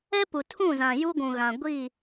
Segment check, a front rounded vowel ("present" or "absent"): absent